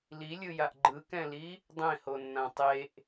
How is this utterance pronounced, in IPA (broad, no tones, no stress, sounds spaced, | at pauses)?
l i lʲ ɯ j a ʔ ɡ͡ǃ ɯ k ɛ̃ l i | dˤ ẽ h o nː ã tˤ e ʔ